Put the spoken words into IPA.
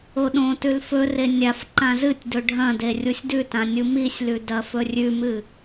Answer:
o ɗ õ t ʉ l f ɵ r e nʲ a f ǃ ã z ɨ tʲ d ɵ ɖʱ ɐ̃ d e rʲ u sʲ d ʉ t ã nʲ u m i sʲ l ʉ d ɐ f ɵ rʲ ʉ m ɨ

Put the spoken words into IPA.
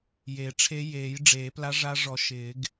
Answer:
j e˨˩˦ ʈ͡ʂʰ e˧˥ j eː˨˩˦ j ɖ͡ʐ eː˨˩˦ p l a˧˥ ʐ a˧˥ ʐ ɔ˨˩˦ ʃ ɪː˨˩˦ ɡ

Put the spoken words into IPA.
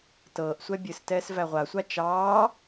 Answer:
t ɤː ʔ sʷ ɛ bʲ ɨ s t ɛː s v æ ʁʷ a sʷ a t͡ʃ ɑː

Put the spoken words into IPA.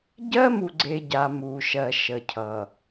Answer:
ɟ ɜː˦ m u˨ ɡ͡ǀ e˨ ɟ a˨ m uː˨ ʃ ɜ˨ ʃ ə˨ cʰ ʌ˨

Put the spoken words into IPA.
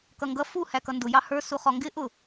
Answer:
k ʌ ŋ ɡ ʌ f u h æ k ʌ n d ʊ j ɑ h ə˞ s u χ ɔ ŋ ɡ ɪ ʔ ʊ

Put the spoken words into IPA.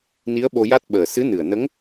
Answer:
n i˧˥ ə̯ ɓ o˧ j a˦˥ t̚ ɓ əː˨˩ s ɨ˧˥ n ɨ˨˩ ə̯ n ə˧˥ ŋ

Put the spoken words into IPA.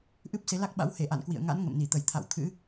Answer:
ʔ ɨ˦˥ p̚ s e˨˦ l a˦˥ k̚ ɓ a̰˧˥ w h e˧˩ ʔ a̰˧˨ n k w ḭ˧˨ ə̯ ŋ a̰˧˥ n ŋ ə̰˧˨ m n i˧˩ t̪ ə˧˩ j t̪ʰ a̰˧˨ w t̪ʰ ɨ̰˧˥

